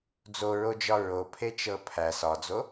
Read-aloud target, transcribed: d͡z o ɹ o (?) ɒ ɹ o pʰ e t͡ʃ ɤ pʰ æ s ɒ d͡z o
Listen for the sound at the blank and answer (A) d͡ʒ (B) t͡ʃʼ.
A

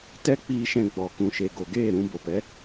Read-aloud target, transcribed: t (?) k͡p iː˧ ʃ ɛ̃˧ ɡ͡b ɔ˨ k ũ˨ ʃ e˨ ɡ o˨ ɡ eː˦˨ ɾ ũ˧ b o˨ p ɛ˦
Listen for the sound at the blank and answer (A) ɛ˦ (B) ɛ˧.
A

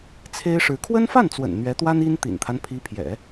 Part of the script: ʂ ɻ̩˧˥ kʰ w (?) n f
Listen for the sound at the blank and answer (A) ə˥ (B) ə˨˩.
A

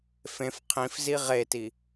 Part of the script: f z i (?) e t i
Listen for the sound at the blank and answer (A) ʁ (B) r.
A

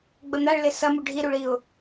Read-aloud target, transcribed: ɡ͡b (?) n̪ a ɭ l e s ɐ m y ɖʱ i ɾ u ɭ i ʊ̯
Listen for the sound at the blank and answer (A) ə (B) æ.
A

